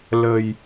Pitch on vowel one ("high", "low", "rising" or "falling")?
low